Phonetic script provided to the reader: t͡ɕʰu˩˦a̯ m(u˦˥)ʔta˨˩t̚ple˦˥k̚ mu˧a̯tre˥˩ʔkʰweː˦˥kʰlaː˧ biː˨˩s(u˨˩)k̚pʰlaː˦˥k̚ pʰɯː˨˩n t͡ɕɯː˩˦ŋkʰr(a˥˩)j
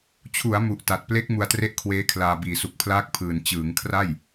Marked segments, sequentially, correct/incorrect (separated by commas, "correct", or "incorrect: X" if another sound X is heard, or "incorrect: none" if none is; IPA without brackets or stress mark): incorrect: u˨˩, correct, correct